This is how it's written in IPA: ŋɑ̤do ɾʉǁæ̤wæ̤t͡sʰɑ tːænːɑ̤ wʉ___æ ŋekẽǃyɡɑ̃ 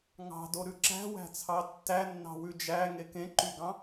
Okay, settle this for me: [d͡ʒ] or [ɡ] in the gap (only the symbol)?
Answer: d͡ʒ